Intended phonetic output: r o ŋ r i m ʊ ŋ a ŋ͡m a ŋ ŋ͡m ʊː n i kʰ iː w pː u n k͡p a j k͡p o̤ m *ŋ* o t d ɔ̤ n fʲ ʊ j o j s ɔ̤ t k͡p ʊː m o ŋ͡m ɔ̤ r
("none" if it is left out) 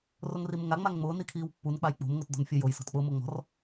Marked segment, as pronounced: ŋ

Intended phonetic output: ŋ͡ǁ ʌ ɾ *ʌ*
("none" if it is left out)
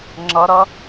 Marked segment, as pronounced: ʌ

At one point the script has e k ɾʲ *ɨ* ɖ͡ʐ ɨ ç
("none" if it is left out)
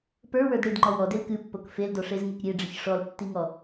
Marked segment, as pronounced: e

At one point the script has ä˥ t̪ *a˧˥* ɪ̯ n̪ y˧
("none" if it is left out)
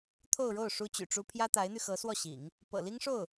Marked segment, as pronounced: a˧˥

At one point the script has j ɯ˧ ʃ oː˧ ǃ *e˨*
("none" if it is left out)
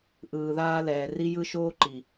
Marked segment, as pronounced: i˨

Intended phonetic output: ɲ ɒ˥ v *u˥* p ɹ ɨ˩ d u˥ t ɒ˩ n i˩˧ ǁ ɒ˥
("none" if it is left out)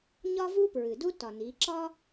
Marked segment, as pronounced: u˥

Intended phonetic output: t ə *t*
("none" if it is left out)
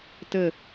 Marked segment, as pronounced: none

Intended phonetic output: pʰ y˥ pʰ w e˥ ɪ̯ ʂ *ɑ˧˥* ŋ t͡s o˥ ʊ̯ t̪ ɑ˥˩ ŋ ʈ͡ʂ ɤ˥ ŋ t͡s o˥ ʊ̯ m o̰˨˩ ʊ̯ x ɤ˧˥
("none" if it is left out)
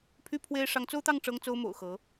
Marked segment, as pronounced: ɑ˧˥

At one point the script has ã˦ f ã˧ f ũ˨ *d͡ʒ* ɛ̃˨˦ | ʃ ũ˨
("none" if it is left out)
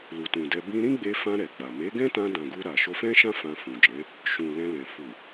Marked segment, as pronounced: d͡ʒ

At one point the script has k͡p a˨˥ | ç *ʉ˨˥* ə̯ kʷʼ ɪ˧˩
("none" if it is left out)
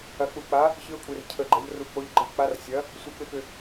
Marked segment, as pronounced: ɨ˨˥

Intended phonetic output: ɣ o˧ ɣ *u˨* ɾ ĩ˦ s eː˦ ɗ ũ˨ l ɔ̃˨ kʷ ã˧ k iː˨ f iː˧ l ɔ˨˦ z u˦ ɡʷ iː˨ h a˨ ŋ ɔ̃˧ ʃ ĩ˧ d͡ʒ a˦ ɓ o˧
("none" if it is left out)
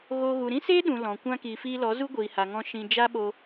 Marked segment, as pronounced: u˨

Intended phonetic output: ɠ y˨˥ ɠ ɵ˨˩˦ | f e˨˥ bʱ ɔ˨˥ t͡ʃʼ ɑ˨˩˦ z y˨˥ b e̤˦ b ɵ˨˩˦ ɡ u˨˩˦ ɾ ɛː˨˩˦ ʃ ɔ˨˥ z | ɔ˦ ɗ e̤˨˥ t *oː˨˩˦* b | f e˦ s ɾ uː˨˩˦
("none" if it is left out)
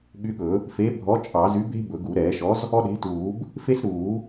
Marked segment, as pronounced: uː˨˩˦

